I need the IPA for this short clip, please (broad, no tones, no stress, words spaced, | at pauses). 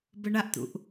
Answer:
bəɳaʔt̪ṵʔ